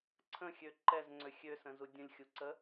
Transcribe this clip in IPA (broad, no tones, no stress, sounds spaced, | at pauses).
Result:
ǀʰ ə̃ xʲ ø ǃ ɛ z ŋ͡ǀ ø xʲ ø s ə̃ z u dʲ ə̃ lʲ xʲ u ǀ ə